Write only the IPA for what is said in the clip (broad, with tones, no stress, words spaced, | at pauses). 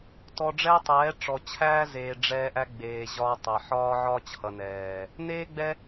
tɔ˧ɖ͡ʐɛː˦tˤɛː˨˦ ʈ͡ʂɔ˨t͡ɕʰæː˦ zeː˨ ɖ͡ʐɛː˧ ʔæ˧ ɡ͡beː˨ ʑɒ˧tˤɛ˨ħɒː˦ ʕɒː˦t͡ɕʰʌ˨nɛː˨ | neː˦ɡ͡bɛ˦